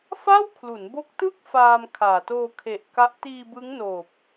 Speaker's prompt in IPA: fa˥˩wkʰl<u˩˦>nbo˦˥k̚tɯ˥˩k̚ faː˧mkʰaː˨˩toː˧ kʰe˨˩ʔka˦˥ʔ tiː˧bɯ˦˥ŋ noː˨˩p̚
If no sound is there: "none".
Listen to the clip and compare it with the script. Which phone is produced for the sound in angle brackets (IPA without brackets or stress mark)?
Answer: u˩˦